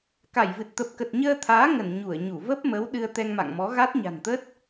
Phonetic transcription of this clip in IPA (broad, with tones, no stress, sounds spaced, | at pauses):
k a˧˩ j v ɨ˨˩ t̚ t̪ ə˨˩ p̚ k ə˨˩ t̚ ɲ əː˧ t̪ʰ aː˨˦ ŋ ə˧˩ n ɲ u˧˩ ə̯ ɲ u˧˩ v ə˦˥ p̚ m ə˨˦ w ɗ ɨ˧ ə̯ t̪ ɛ˧ ŋ m a̰˧˨ ŋ m ɔ˨˦ ɣ a˦˥ t̚ ɲ a̤˨˩ n t̪ ə˦˥ t̚